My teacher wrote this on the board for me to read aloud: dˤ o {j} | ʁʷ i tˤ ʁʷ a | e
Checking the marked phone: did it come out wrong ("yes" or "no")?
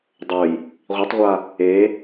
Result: no